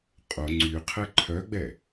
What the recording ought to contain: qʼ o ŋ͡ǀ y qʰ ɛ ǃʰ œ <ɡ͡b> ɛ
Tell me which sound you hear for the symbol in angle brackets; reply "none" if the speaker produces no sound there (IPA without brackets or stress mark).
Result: ɡ͡b